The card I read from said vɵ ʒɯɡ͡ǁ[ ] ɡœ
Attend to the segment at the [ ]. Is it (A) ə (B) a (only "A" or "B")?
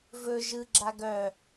B